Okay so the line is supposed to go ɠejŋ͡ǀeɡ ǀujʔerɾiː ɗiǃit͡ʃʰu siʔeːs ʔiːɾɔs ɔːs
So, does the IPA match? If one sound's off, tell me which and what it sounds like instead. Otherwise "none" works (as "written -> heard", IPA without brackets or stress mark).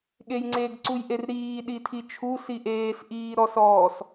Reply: ǃ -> tʰ